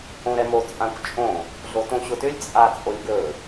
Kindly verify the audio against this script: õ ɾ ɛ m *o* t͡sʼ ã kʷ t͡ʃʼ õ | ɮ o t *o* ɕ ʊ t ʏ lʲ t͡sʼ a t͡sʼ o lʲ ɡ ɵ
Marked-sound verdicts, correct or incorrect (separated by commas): correct, incorrect